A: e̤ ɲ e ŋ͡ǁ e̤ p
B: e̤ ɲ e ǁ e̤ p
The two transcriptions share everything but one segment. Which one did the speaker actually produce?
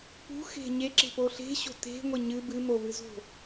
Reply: B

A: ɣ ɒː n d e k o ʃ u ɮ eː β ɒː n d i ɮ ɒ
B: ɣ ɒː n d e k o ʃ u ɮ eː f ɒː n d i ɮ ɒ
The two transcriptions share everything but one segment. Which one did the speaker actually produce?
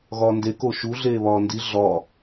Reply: A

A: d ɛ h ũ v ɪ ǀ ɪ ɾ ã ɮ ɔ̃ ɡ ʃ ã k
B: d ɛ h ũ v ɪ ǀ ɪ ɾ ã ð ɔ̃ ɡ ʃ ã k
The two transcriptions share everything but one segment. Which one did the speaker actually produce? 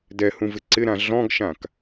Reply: A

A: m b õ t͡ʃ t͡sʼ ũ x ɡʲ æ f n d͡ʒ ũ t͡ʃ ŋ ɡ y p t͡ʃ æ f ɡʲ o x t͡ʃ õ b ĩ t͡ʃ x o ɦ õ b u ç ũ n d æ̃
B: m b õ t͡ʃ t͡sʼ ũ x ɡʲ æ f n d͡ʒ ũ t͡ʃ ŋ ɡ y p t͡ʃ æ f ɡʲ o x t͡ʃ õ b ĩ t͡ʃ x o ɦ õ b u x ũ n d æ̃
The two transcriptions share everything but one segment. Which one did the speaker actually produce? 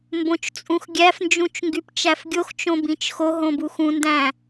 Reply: B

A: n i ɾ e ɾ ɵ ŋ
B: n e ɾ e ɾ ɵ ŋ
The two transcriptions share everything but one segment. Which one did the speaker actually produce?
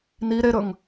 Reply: A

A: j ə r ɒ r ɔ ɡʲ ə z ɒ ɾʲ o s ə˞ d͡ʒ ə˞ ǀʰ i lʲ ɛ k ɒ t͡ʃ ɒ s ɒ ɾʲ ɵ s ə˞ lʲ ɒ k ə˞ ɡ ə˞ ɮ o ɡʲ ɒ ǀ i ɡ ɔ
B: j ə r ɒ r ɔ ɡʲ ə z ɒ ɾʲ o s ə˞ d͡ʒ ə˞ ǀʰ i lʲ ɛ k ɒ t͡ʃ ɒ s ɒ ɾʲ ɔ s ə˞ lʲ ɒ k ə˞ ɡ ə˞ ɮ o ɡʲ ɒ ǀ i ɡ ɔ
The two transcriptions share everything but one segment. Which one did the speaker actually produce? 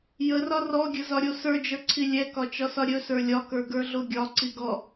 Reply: A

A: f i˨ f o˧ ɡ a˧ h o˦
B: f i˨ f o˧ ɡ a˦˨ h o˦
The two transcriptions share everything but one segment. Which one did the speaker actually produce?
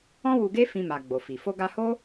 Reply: A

